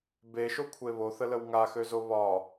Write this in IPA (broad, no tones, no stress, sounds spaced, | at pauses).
b e ʃ o kʷʰ e β o θ ə l ə w ŋ a x ø z o β ɒ